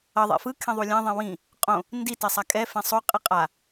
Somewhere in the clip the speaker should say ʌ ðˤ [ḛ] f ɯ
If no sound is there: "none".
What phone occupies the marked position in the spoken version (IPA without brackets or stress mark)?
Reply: ḛ